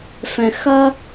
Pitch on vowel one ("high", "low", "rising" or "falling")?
low